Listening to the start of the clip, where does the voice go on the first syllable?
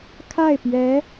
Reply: falling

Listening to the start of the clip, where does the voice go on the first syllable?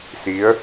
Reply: rising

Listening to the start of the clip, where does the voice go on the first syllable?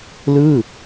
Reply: falling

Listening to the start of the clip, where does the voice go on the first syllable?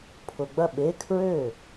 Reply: low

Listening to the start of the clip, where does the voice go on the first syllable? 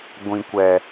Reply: low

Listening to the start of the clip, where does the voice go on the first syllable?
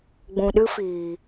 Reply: low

